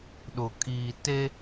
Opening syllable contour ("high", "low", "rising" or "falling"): low